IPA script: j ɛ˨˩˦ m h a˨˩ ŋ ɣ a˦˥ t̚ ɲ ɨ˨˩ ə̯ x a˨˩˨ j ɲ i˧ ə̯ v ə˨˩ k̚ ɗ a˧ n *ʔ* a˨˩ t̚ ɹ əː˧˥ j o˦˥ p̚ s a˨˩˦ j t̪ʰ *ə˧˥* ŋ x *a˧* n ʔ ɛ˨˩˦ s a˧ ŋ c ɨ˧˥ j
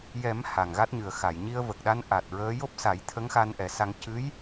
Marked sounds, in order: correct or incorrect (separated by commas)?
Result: correct, correct, correct